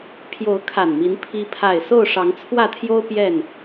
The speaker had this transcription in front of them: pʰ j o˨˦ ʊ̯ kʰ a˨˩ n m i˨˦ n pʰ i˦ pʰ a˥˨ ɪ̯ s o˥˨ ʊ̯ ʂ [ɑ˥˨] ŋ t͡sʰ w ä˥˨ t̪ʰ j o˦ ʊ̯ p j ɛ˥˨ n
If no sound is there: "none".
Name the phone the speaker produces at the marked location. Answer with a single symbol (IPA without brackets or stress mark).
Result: ɑ˨˦